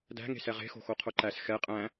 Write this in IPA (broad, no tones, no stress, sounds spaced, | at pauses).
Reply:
d æ̤ ŋ e̤ s ɛ ʁ e̤ x o̤ x o qʰ o ǃ æ s x ɛ qʼ æ̃